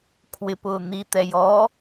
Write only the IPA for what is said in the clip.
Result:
kʰ w ɪ p ʊː n̪ i t̪ ɛ j ɔ

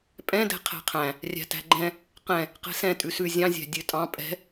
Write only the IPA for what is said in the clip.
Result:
pʼ ɛ̃ d ɛ̤ qʰ æ̤ qʰ æ̃ | rʲ æ̤ t æ̤ ɡ͡ǃ ɛ̃ | q ɛ̃ | q ɛ̤ s ɛ̃ tʼ ʉ s ʉ zʲ ɑ̃ zʲ æ̤ dʲ ø tʼ ɑ̃ pʼ ɛ̤

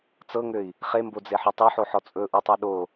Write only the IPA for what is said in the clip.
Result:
t͡s ɤ ŋ ø i̯ | χ e m b o d͡z e ħ ɔ tˤ ø ħ o ħ ɔ t͡sʼ ɵ ʔ u tˤ o ɗ o

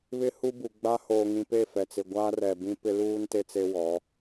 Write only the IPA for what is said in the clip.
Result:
β ɪ˦ h u˦ b u˨ ɡ͡b a˦ h oː˨ ŋ ĩ˨ p e˦˨ f ɛ˨ t͡s ɪ˨ ɡʷ a˦ r ɛ˨ b ĩ˦ p ɪ˦ l uː˦ n t e˦ t͡s e˦ w ɔ˨˦

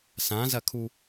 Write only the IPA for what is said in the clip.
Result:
s ã z ɐ kʰ u

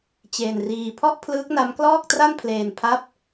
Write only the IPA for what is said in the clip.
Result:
t͡ɕ eː˧ n r iː˧ pʰ ɔ˥˩ ʔ pʰ l ɯː˦˥ k̚ n a˦˥ m k l ɔː˥˩ k̚ t r a˥˩ n pʰ l eː˧ n pʰ a˦˥ p̚

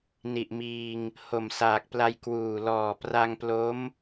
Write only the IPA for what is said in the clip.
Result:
n i˨˩ ʔ m iː˧ ŋ | h o˨˩ m s aː˨˩ k̚ p l a˧ j k w uː˨˩ l ɔː˨˩ p r a˧ ŋ p l o˦˥ m

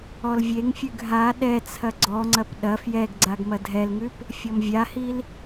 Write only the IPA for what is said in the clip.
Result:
ɔ l vʲ e ŋ fʲ ʉ ɡ ɦ a ɗ ɛ t͡sʰ ɐ ɡ͡ǀ ɔ ŋ͡ǀ ɐ p ɗ ɐ f j ɛ ɡ ɡ͡ǀ a ɡ m ɐ dʱ ɛ l ŋ ʉ p | fʲ ɔ m vʲ a h i l

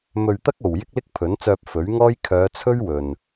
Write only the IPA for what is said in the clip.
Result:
m ɵ˧ ɥ t̪ ɐ˥ k̚ o˨ w j ɪ˥ k̚ l ɪ˥ k̚ pʰ ɵ˨˥ n t͡s œː˧ p̚ f ɵ˨˥ ɥ ŋ ɔː˥ j kʰ œː˨˧ t͡sʰ ɵ˥ ɥ w ɵ˨ n

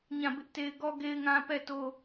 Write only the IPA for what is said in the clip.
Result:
ɲ ã˦˨ b ɪ˦ ʔ t e˦ ɪ̯ ɡ ɔ˦ ɡ e˦ ɪ̯ ŋ ã˦ p ɛ˦˨ t o˦

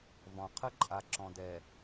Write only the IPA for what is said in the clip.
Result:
v ɔ̃˨ qʰ ə˦ ǃʼ a˨ ǁ ɔ̃˨ d ɛ˨

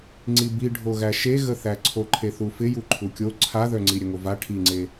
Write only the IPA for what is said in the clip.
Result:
ŋ͡ǀ i b i ɖʱ o ɣ æ ʃ e ɣ ə θ æ ǀʰ o ǃʰ e θ u f ɪ j u ǃʰ u kʲ o ǀʰ a ð œ ŋ͡ǀ i ɾʲ ə ŋ o v a ʈʰ i ŋ͡ǀ e

